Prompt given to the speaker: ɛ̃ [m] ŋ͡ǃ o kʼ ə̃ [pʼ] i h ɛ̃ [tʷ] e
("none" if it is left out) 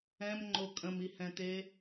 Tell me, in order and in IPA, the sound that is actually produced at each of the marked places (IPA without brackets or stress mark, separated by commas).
m, m, t̪